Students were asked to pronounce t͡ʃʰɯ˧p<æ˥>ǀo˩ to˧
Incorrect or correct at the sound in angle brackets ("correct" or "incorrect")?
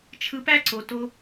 correct